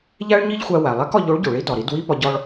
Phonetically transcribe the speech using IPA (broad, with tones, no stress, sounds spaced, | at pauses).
ʎ æ˥ ɭ ɲ i˥ ʎ xʷ æ˧ w æ˩ lˠ æ˧˥ k ɒ˧ ʎ o˧˥ ɭ ɟ o˩ ɭ i˧˥ d ɒ˩ ɾ i˩˧ d w i˥ p ɒ˧ ɟ ɒ˧ ɭ